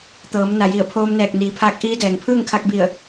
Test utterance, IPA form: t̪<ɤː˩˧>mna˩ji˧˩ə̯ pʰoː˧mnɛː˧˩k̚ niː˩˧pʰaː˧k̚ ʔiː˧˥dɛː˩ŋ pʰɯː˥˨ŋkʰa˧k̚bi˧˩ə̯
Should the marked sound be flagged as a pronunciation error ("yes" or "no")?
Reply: no